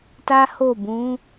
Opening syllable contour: high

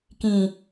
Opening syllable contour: low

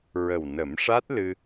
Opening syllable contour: low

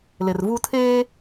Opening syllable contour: low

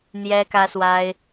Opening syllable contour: high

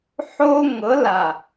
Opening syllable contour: high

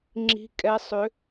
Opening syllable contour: rising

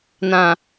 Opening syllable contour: low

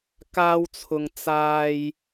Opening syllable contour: high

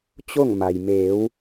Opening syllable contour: falling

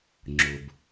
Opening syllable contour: low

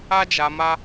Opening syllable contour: high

